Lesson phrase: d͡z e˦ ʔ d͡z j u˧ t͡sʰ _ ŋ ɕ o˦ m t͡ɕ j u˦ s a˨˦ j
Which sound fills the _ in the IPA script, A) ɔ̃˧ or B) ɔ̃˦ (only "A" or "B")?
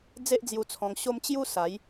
A